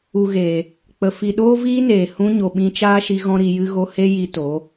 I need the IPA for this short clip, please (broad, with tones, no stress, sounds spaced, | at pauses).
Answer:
u˨ ɣ eː˨ | k͡p ə˨ f i˨ ɗ oː˦ v iː˦ n eː˨ h ũ˧ ɲ o˨ ɓ ĩ˧ t͡ʃ aː˦ ʃ i˧ ɣ ɔ̃˦ ɾ i˧ j ɨ˦ ɣ o˦ h e˦ j i˧ t o˨˦